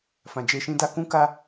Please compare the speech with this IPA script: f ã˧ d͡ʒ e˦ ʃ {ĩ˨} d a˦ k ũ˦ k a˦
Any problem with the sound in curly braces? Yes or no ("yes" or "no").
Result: yes